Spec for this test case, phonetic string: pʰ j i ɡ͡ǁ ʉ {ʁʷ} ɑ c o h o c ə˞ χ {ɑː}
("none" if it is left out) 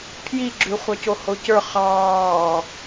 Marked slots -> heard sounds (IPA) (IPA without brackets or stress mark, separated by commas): χʷ, ɑː